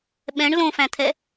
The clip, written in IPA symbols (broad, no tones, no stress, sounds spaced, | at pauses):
ɓ ɛ̃ ɳ l õ f æ̃ t̪ʰ ɛ